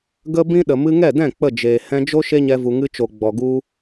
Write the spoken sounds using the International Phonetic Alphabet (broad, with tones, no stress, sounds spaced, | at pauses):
ɡ ə˦ b ĩ˦ ɗ ə˨ m ɨ˧ ŋ ɛ˦˨ d ɛ̃˦˨ k͡p ə˦˨ d͡ʒ eː˨ h ɛ̃˧ d͡ʒ o˦ ʃ e˦ ɲ ɛ˧ v u˨ ŋ ɨ˧ t͡ʃ o˨ ɡ͡b ɔ˨ ɡ u˧